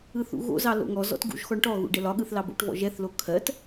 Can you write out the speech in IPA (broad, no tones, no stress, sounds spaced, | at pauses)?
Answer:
ɯ θ ṵ ɣ o̰ z ɑ l o̰ ŋ ɔ z ɔ̰ t ɡ ṵ ʒ x ɔ ɳ ʈ ɔ ɣ ṵ ɖ ɛ l ɒ ɠ ɯ θ l ɑ b o̰ ʈ v ɔ̰ ʒ ɛ θ l o kʰ ɜ t